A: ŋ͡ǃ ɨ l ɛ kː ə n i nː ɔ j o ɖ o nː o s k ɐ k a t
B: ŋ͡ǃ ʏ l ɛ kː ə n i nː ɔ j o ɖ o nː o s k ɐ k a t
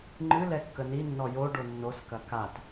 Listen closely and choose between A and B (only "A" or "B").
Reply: A